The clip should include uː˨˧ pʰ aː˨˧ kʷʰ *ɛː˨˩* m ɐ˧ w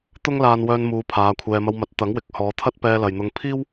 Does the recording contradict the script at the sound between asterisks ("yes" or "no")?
yes